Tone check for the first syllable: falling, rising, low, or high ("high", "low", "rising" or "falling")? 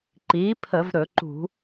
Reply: rising